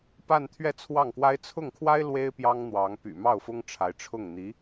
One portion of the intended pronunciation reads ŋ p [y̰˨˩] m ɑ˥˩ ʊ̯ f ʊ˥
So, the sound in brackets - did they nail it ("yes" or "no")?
yes